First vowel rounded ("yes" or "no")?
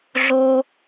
yes